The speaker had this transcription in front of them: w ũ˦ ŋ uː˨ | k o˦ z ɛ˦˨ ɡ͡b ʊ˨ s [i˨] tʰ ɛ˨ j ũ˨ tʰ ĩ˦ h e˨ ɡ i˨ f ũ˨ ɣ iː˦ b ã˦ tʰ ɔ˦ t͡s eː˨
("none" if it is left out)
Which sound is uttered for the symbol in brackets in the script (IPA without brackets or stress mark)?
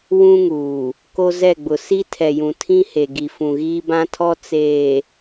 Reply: i˦